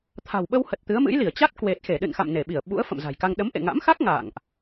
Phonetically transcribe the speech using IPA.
t̪ʰ a̤˨˩ w ɓ ə˧ w h ə˨˩ t̚ t̪ ɨ˨˦ ə̯ m ɨ̰˧˥ j l i˧˩ ə̯ t͡ɕ a˦˥ t̚ k w e˨˩ t̚ x e˧˩ ɗ ɨ̰˧˨ n x a̰˧˨ m n e˧˩ ɓ i˧˩ ə̯ ɓ ṵ˧˥ ə̯ f ə̰˧˨ m z a̤˨˩ j k a˧ ŋ ɗ ə˨˦ m ʔ ḛ˧˨ ŋ a̰˧˥ m x a˦˥ k̚ ŋ a̰˧˨ ŋ ʔ

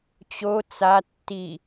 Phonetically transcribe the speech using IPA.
t͡ɕ o t͡s a tː i

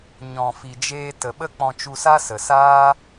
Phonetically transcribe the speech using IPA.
ɲ ɔ̃˨ f i˨ d͡ʒ eː˧ t ə˨ ɓ ə˦ k͡p ɔ̃˧ t͡ʃ u˧ s a˦ s ə˨ s aː˦

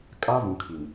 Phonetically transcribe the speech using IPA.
kʼ a˦ v ũ˨ kʰ i˨ m

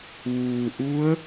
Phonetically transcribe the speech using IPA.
ʋ uː˩ ʔ u˧˥ ə̯

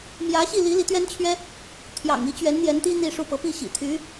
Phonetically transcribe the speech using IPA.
m j ä˧˥ ɕ i˥˩ l i˧˥ l i˧˥ t̪ ɥ ɛ˥ n t͡ɕʰ ɥ ɛ˥ | t̪ʰ j ɑ̰˨˩ ŋ i˧˥ t͡ɕ ɥ ɛ˧˥ n n̪ j ɛ˧˥ n t̪ i˥ n̪ i˥˧ ʂ u˥˩ p ɤ˧˥ p i˥˩ ɕ ḭ˨˩ t̪ʰ y˧˥

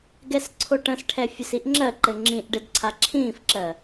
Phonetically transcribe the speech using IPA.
ɡ ɛ s ǀʰ o ʈ ə̃ s ʈʰ ɛ fʲ ə s i ʔ ŋ͡ǁ ɜ ǃ ɘ ŋ͡ǁ ĩ ʔ ɖ ɘ d ǀʰ a ǁʰ ĩː f ǁ ɜ

